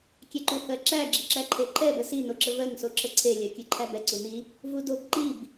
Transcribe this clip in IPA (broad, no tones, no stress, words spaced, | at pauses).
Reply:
kʲɛǃuhɜǁæ ɡ͡ǁiǁæǃʰeǃʰɛ bəsi noǁəvɜŋ soǁəǀʰe lʲɜkʲɯǃʰæbɛ ǀuni | vudob ǃib